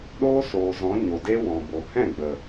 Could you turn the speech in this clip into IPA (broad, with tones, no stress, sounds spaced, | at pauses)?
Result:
ɗ oː˦ s oː˨ z ɔ̃˨˦ ɲ o˨ d e˦ w ɔ̃˨ b o˨ h ɛ̃˦˨ ɡ͡b ə˨